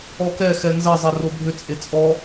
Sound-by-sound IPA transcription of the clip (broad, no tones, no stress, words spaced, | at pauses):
ɔkɛ xɛnzɐ zˤɛrobʱʏ t͡sʼet͡sʼɔ